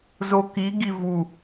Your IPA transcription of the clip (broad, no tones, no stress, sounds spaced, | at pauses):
z o k i ɡ i v u